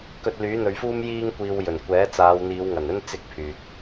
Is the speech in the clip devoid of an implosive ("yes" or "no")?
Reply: yes